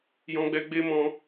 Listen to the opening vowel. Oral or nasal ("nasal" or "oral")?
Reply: nasal